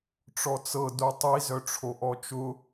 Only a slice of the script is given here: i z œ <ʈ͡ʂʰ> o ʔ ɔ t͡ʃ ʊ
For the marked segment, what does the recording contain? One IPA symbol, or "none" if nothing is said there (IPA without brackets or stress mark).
ʈ͡ʂʰ